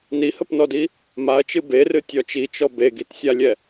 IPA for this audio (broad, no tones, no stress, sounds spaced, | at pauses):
n i h ə p n ɔ d i | m a ɐ̯ t͡ʃ ɨ b e r ɨ tʲ ɔ t͡ʃ i t͡ʃ ɔ b e ɡ i t sʲ a lʲ ɛ